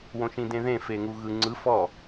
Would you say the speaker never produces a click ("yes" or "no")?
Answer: no